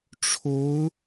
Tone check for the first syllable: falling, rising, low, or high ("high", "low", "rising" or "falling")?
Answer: rising